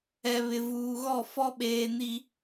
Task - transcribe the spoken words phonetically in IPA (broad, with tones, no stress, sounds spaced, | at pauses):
ɛ˨ β ɪ˨ v uː˨ ɣ ɔ˦˨ f ɔ˦ ɓ eː˨ n i˨